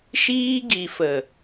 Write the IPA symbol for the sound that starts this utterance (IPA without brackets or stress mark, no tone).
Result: ʃ